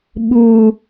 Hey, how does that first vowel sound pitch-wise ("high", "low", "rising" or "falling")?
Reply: low